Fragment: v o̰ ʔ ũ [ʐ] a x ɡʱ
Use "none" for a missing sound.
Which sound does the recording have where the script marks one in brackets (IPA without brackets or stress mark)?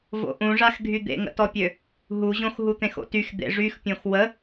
ʐ